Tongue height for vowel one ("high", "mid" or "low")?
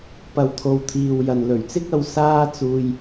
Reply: low